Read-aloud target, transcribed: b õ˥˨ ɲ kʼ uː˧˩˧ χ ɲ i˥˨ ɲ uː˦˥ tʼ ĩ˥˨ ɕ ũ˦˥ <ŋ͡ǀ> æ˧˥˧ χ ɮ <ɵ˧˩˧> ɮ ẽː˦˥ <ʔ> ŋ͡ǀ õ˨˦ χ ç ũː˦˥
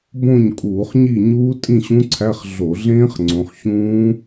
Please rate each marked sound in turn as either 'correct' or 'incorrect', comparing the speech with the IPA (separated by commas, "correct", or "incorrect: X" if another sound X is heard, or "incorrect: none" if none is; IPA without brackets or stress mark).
incorrect: ǀʰ, incorrect: o˧˩˧, incorrect: χ